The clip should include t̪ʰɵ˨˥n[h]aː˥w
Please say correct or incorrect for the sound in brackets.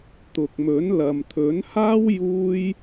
correct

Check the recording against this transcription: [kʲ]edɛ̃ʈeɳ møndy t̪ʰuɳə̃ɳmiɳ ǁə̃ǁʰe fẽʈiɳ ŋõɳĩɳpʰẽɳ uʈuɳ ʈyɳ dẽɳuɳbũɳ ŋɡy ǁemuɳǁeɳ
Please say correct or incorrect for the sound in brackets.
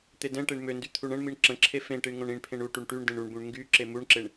incorrect: t̪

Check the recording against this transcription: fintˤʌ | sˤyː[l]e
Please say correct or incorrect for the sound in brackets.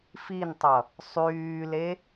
correct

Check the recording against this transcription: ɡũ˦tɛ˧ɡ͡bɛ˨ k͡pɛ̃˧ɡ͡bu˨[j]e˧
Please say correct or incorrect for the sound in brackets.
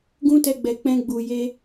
correct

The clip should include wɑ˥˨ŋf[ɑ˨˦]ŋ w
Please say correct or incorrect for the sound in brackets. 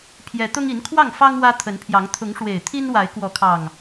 incorrect: ɑ˦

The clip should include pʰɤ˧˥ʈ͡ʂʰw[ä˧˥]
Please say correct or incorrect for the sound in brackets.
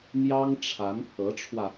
incorrect: ä˧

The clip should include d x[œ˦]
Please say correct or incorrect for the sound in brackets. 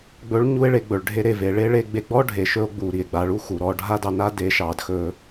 incorrect: ɵ˦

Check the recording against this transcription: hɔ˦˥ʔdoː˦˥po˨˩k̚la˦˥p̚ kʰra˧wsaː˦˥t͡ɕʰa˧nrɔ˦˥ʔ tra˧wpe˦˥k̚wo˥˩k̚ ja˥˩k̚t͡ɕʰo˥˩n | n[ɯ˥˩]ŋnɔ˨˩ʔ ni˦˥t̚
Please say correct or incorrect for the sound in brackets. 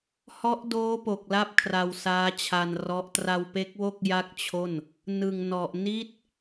incorrect: ɯ˨˩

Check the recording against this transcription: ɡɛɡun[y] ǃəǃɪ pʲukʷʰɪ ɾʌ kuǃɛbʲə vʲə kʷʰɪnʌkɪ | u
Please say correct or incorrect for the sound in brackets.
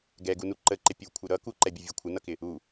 incorrect: u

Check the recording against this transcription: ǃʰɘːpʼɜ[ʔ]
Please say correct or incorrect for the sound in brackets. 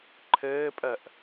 correct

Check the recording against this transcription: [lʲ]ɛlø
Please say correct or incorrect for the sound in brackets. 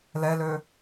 incorrect: l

